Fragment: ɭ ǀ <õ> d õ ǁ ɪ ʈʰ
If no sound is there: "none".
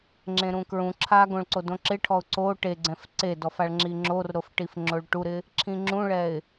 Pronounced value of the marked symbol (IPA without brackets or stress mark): o